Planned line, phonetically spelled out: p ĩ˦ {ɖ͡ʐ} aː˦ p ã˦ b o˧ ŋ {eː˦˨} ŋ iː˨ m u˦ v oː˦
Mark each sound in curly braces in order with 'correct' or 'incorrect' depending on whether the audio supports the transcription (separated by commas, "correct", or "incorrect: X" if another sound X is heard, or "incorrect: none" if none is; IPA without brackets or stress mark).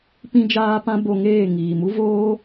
incorrect: d͡ʒ, correct